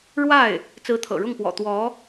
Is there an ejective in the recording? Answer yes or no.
no